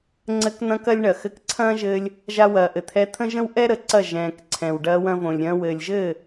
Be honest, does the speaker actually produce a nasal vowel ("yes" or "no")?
yes